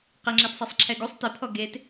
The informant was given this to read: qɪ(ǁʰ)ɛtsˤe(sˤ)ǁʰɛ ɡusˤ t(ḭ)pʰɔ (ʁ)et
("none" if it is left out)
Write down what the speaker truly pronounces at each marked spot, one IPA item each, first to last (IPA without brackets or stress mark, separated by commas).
ŋ͡ǁ, sˤ, i, ɡ